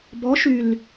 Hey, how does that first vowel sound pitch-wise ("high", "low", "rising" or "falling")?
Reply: rising